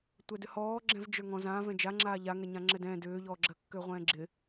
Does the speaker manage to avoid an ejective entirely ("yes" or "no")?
yes